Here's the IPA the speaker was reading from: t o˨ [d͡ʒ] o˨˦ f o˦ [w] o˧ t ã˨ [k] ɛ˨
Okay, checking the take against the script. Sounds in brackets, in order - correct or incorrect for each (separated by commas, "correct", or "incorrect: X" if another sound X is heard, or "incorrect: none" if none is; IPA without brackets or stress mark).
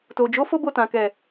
correct, incorrect: b, correct